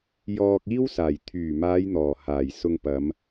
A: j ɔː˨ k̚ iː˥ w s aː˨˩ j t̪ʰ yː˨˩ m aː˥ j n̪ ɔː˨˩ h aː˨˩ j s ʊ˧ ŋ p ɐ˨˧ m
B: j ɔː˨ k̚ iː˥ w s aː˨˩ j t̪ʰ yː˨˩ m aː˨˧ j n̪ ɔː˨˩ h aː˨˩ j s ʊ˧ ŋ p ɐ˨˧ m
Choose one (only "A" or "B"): B